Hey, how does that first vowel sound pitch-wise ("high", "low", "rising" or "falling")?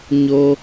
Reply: high